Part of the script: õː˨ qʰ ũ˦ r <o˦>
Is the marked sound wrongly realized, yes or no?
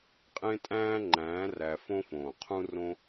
yes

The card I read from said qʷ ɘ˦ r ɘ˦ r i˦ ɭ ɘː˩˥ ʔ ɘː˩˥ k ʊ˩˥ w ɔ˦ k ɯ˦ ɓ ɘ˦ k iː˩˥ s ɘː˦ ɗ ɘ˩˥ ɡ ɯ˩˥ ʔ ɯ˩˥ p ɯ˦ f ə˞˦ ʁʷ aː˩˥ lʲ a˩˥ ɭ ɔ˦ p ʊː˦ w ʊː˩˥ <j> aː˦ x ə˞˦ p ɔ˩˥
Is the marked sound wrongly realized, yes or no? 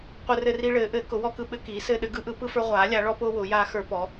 no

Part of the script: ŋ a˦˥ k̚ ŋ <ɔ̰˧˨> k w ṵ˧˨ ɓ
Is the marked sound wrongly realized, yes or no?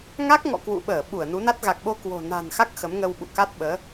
no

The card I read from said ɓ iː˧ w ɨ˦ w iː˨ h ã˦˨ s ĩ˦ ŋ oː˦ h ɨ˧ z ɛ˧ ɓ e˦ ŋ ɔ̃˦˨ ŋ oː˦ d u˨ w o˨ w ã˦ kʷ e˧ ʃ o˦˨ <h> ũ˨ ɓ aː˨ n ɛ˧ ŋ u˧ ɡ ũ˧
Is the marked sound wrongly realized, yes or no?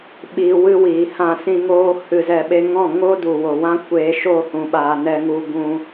no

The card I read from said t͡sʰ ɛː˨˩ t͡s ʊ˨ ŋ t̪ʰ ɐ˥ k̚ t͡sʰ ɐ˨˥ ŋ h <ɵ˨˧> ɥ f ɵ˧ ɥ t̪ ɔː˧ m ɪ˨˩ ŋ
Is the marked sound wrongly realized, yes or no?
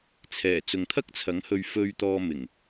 yes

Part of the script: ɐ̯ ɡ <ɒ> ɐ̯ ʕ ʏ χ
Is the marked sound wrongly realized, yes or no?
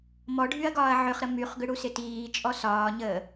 yes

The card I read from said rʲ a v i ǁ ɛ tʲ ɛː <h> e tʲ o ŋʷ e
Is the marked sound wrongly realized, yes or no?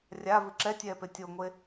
yes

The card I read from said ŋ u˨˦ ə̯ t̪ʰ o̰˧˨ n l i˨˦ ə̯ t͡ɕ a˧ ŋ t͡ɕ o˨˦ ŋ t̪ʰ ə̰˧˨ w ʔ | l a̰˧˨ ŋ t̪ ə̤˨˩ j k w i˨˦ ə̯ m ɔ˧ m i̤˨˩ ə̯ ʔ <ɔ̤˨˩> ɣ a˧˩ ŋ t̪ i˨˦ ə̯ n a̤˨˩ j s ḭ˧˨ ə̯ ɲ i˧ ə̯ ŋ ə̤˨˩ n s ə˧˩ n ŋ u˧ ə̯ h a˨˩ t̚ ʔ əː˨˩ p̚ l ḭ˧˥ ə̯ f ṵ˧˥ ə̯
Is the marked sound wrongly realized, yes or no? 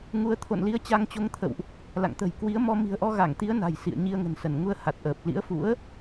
yes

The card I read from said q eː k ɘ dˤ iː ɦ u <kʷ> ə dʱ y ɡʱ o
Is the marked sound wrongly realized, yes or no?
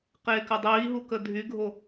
yes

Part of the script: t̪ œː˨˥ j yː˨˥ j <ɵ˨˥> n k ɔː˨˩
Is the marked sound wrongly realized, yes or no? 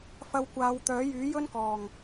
yes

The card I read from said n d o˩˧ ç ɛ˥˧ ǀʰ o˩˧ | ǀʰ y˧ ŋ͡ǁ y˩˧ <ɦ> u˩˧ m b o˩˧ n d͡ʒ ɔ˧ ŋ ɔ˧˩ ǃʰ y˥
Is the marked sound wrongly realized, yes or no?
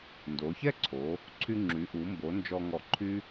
yes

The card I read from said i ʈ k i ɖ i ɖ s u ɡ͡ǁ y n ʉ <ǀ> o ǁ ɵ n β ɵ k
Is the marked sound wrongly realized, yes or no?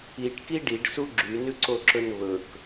no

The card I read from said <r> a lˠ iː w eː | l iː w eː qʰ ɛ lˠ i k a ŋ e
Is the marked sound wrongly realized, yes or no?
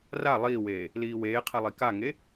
no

